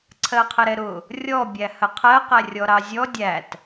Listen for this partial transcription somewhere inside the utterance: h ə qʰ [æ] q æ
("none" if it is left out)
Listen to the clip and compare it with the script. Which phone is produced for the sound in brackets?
ɜ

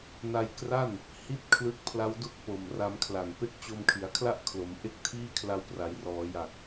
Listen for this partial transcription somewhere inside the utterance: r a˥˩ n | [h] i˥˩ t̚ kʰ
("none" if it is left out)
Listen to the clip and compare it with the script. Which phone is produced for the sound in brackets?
h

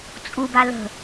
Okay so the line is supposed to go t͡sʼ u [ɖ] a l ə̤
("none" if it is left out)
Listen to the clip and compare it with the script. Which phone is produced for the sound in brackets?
b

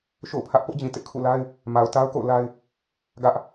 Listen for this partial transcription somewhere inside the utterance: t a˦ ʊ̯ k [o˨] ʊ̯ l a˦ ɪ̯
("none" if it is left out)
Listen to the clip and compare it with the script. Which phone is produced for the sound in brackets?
o̰˦˨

